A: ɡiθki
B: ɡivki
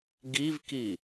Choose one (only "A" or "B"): B